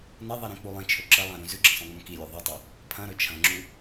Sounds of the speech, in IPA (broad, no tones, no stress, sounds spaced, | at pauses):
n ɐ ðˤ i ɾ ĩ k͡p u lˠ ĩ t͡ʃʰ ɵ ǁ ɐ lˠ ã ɾ ũ z ʉ ɡ͡ǁ ɐ̃ sˤ õ ŋ͡m õ k i lʲ u ðˤ i tˤ ɐ | pʰ ɐ̃ ɾ ɵ t͡ʃʰ ɐ̃ ŋ͡ǁ u